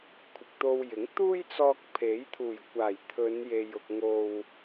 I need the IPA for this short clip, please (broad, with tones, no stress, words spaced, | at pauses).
kʷʰɪ˨k̚t̪o˧wjɪ˨˥ŋ t̪uː˥jt͡sɔː˧k̚ pʰe˨˥jt̪ʰuː˨˩jkʷaː˨˩j t̪ʰɵ˨˧nje˨j ʊ˨k̚ŋo˨w